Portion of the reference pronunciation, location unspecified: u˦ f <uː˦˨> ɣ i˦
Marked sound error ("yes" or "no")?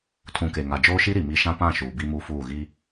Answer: no